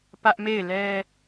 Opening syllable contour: high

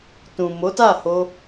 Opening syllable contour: low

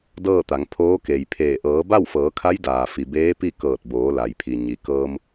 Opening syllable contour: falling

